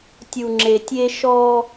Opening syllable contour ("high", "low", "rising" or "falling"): low